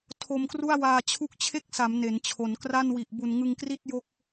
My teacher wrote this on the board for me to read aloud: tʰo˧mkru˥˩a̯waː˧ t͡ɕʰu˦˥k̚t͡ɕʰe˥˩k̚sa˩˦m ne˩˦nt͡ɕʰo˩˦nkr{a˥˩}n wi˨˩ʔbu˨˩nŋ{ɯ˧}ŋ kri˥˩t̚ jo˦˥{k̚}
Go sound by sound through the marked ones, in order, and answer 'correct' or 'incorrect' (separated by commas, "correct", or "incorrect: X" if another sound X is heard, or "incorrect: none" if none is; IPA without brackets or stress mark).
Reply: correct, correct, correct